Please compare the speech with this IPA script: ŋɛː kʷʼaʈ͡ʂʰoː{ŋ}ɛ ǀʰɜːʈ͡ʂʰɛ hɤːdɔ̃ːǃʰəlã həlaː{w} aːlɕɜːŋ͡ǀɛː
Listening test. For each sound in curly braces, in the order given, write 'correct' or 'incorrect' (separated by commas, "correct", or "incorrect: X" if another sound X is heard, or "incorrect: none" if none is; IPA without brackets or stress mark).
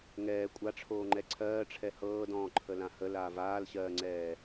incorrect: ŋ͡ǃ, incorrect: v